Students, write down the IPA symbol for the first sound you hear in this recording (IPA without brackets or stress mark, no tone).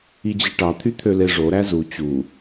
i